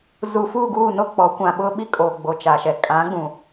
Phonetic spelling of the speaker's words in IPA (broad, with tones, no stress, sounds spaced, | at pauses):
z u˨ f uː˦˨ ɡ uː˦˨ n o˦˨ k͡p ɔ˨˦ kʷ ã˨ ɓ ʊ˦ ɓ i˦ kʼ oː˨ ɡ͡b o˨ t͡ʃ a˨ ʃ ɛ˨ kʼ ã˨˦ ɡ͡b ũ˨